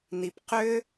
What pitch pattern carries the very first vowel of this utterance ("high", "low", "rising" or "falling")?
low